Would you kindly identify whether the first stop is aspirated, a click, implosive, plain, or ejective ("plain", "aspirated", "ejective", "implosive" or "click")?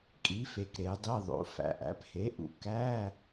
ejective